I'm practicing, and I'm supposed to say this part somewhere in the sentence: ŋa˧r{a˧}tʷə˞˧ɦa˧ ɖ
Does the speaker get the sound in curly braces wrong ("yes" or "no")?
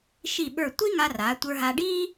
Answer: yes